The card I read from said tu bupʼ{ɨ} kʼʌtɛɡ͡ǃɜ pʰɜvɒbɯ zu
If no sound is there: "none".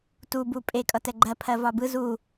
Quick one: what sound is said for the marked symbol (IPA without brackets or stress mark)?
e